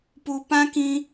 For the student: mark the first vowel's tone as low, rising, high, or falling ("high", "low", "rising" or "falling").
low